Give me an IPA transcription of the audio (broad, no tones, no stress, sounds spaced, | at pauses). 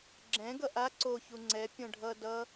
ɡ͡ǁ ɛ̃ ɡ ʌ ʔ a ǀ o ç u ŋ͡ǀ ɛ pʲ õ ɖʱ ʌ d ʌ